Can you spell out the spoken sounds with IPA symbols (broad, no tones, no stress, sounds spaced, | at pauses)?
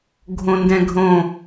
ɡʱ õ n d ɛ̃ ɡʱ õ